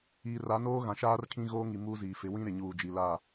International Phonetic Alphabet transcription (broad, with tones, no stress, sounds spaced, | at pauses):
iː˨ r a˨˦ n oː˦ ɣ ã˨ ʃ aː˦ r kʰ ĩ˦ ɣ oː˦ ŋ i˨ m uː˦ z iː˨ f ɪ˨˦ w ĩ˦ ɾ ɪ˨ ɲ uː˨ d͡ʒ i˨ l aː˦˨